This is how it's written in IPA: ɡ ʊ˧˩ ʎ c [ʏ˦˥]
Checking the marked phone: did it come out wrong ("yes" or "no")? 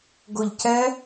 yes